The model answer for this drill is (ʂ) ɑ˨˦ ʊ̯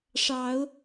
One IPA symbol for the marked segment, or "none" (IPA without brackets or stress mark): ʂ